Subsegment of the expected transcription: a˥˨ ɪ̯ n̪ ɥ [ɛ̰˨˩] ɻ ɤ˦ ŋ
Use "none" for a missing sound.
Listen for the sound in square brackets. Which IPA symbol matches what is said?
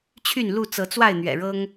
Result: ɛ̰˨˩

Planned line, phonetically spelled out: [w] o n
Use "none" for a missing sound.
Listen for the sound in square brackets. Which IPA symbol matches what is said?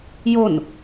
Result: j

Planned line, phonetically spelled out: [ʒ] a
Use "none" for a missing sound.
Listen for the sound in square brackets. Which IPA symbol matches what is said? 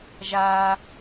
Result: ʒ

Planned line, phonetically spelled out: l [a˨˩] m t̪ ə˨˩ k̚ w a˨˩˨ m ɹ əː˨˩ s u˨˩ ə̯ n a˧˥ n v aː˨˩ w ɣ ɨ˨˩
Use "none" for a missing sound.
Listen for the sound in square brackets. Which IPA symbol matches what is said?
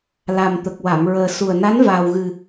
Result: a˨˩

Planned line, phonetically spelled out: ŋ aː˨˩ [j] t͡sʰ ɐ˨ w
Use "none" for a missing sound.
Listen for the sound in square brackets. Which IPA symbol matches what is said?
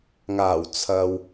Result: w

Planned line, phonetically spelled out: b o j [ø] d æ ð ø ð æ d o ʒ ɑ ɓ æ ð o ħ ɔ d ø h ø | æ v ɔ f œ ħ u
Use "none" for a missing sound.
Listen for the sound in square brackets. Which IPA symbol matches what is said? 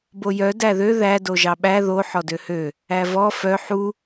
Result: œ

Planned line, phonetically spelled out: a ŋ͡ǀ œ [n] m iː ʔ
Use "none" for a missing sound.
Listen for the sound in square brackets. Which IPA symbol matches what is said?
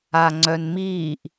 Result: n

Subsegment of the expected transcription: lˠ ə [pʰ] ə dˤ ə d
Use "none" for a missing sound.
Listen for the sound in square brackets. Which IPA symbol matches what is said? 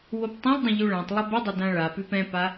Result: b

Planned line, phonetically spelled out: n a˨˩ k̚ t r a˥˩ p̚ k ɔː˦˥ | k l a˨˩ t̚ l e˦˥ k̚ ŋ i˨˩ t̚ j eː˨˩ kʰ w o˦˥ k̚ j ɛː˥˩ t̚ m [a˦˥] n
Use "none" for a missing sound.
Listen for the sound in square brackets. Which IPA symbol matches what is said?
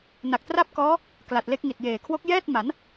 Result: a˩˦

